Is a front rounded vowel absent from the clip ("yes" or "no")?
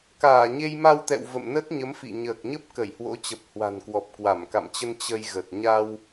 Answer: yes